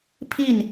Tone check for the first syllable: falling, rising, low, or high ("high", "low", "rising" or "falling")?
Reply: falling